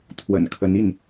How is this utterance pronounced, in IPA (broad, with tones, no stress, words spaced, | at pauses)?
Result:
t̪ʰwə̰˨˩nkʰə˧˥n i˥˩n